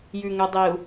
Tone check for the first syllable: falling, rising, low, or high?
low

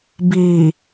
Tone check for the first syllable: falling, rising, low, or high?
low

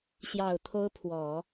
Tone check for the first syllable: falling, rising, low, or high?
low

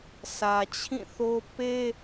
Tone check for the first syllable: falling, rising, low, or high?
low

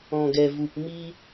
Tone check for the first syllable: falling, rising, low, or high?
low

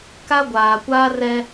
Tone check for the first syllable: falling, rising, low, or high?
high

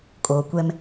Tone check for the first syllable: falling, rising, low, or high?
low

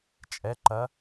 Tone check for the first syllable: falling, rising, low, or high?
rising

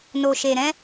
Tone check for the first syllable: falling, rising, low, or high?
low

